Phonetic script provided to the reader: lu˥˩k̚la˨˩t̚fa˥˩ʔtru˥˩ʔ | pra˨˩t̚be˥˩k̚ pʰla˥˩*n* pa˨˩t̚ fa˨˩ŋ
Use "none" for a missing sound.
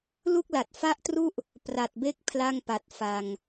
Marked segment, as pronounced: ŋ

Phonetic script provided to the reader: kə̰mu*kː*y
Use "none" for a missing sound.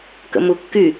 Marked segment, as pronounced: kː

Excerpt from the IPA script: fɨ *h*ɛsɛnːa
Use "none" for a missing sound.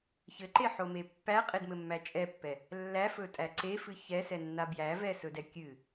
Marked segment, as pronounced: ç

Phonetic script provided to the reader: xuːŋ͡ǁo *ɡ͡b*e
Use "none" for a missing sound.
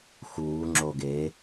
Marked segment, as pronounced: ɡ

